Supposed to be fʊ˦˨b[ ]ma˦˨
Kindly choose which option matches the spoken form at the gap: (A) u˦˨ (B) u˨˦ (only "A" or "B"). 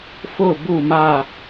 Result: A